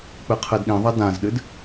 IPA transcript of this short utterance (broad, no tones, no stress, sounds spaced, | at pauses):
k͡p ɨ qʰ ɨ d ɗ ĩ ðˤ ɐ d ã z ɗ ɨ d